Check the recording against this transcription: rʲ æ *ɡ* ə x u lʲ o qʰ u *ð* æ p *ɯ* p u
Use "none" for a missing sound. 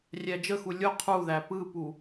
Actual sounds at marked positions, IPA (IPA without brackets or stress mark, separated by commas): d͡ʒ, ð, ɯ